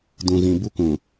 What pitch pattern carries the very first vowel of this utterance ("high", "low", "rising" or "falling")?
low